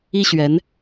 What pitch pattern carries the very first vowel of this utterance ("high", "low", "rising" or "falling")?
high